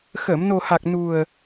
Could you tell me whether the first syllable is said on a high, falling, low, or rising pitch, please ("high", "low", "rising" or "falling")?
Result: low